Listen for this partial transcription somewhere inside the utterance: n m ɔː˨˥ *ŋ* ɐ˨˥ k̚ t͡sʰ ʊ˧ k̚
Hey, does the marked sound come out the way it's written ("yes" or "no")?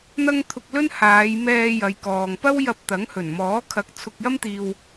no